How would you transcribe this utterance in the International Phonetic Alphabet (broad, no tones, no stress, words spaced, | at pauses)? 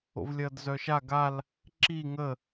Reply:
o̰vlʲɐːdzœʃa ɡal | ǁi ŋə